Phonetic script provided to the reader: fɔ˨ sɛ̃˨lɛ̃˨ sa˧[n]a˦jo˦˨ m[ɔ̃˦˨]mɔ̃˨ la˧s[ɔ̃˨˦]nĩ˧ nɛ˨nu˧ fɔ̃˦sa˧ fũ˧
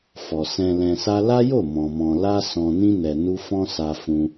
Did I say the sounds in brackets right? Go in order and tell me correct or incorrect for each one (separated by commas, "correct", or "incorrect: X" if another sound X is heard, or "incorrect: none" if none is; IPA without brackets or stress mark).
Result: incorrect: l, incorrect: ɔ̃˨, incorrect: ɔ̃˨